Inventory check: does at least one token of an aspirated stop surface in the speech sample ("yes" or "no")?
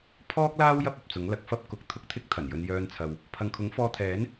yes